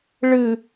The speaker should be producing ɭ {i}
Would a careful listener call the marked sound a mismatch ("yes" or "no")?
yes